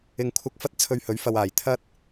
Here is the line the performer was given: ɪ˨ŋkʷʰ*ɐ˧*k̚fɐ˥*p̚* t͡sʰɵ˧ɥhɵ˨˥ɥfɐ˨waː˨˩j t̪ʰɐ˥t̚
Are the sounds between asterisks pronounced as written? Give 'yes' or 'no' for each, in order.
yes, no

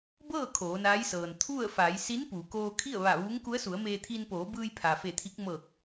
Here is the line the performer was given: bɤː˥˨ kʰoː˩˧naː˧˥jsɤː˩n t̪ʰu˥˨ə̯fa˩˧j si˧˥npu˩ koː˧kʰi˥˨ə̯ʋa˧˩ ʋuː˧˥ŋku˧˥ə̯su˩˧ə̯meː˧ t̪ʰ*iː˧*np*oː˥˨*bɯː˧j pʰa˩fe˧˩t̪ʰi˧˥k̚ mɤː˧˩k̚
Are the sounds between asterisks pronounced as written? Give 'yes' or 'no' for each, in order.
yes, no

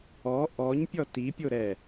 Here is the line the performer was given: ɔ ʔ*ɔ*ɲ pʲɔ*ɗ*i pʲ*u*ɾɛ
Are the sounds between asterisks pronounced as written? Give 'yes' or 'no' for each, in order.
yes, no, no

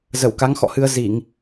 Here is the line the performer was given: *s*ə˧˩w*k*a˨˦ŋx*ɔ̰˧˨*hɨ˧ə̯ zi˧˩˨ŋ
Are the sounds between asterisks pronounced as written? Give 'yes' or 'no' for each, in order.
no, yes, yes

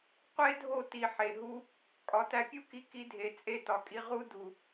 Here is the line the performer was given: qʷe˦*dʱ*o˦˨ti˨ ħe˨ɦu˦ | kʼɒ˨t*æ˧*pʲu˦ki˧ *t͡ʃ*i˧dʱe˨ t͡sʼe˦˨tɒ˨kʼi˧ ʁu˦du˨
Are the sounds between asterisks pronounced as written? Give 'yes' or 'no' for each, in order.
yes, yes, no

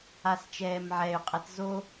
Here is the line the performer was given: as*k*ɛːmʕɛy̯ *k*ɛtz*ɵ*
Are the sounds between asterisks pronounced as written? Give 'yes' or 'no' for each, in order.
no, no, no

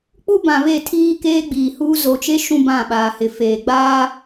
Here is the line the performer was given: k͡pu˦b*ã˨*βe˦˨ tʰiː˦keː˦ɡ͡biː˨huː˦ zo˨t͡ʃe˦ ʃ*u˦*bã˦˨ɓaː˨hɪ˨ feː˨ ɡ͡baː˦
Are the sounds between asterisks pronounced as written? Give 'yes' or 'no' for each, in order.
yes, no

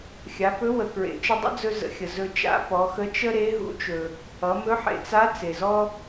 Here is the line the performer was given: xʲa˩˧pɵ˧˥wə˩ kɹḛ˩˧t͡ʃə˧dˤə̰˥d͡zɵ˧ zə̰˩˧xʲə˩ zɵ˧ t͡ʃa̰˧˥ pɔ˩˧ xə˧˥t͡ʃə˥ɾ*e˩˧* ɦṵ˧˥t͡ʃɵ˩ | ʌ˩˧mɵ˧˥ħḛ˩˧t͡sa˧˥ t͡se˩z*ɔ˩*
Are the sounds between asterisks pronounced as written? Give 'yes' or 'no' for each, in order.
no, no

